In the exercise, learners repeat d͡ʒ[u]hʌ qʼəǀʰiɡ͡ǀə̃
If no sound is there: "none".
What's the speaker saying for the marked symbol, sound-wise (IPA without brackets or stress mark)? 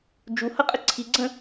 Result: u